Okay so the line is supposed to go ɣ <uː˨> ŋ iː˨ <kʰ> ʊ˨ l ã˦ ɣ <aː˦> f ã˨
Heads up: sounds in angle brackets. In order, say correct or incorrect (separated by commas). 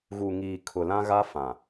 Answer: incorrect, correct, incorrect